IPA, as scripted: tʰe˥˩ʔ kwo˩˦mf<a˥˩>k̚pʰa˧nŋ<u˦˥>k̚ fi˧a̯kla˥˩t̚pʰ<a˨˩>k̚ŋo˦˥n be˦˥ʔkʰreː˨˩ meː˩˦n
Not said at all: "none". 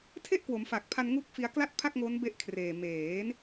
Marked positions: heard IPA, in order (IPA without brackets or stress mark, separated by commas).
a˨˩, u˦˥, a˥˩